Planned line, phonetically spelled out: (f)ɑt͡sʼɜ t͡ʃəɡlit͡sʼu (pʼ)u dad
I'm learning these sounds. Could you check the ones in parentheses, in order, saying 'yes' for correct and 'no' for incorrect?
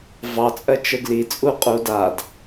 no, no

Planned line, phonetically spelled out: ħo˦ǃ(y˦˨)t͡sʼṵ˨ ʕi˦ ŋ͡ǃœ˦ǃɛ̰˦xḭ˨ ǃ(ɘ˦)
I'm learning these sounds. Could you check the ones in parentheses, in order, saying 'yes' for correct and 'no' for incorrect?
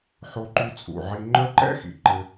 no, yes

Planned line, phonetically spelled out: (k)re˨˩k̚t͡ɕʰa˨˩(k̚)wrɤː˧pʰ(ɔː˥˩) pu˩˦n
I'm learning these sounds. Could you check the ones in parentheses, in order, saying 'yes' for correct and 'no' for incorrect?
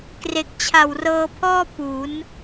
yes, no, yes

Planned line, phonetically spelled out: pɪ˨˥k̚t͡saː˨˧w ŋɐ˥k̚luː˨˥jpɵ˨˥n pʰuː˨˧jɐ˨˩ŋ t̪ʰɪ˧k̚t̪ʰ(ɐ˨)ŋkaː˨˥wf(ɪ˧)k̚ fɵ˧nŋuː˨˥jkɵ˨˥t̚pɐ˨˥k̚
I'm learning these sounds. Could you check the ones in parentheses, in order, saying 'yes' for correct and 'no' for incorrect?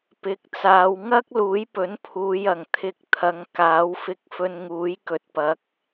no, yes

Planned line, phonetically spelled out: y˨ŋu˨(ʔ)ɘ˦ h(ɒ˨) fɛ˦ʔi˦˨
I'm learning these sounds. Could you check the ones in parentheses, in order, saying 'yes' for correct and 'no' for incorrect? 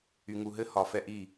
no, yes

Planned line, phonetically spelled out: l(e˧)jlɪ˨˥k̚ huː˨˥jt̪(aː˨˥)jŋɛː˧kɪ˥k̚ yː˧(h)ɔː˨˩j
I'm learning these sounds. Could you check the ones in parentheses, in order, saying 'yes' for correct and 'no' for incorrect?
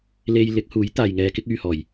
yes, no, yes

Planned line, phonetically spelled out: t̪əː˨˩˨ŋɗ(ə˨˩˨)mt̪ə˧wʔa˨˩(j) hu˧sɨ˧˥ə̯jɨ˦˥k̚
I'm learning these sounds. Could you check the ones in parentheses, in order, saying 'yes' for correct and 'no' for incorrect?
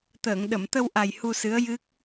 yes, yes

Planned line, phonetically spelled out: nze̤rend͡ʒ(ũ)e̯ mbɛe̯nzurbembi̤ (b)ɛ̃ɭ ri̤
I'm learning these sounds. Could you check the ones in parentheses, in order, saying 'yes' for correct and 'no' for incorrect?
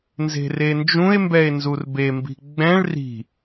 yes, no

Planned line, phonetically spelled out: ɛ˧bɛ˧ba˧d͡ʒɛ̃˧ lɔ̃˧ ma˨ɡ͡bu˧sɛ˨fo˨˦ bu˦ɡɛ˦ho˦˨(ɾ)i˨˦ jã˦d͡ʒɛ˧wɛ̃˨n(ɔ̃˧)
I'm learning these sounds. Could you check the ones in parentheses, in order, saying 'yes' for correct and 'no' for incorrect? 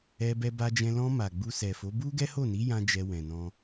no, yes

